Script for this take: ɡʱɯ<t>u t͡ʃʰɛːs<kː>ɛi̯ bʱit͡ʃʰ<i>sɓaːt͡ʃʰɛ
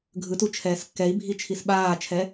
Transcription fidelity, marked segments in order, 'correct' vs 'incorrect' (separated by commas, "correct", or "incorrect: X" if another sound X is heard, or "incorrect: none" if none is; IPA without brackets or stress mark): correct, correct, correct